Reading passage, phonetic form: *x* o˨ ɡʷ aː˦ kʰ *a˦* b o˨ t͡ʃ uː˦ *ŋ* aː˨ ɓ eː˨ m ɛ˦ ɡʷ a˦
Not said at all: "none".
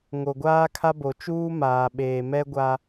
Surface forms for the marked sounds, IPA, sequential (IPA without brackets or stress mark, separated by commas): ŋ, a˦, m